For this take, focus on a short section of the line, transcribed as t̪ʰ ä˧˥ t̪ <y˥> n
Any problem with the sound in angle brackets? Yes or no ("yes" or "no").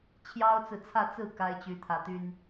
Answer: no